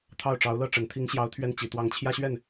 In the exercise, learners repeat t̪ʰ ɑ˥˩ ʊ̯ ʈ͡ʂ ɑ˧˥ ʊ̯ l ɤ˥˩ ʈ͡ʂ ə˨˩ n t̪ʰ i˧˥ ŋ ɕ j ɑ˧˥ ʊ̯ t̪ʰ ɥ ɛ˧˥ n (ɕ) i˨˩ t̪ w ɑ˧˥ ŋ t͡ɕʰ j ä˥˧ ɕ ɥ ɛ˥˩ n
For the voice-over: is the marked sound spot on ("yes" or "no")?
no